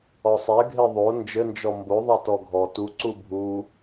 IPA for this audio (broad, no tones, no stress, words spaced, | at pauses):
ɔsˤɛ ɡʱeðˤo nd͡ʒɘnd͡ʒɔ mboðˤa tɔɡʱɔ tuǀu bʱu